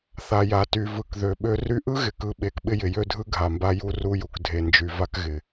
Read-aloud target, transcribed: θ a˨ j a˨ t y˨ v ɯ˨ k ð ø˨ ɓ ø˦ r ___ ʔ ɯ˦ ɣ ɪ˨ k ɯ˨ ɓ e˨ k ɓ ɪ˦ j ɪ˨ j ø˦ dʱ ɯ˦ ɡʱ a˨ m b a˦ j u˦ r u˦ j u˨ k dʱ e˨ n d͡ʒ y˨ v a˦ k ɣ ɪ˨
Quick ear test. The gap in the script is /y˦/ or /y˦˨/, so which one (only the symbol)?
y˦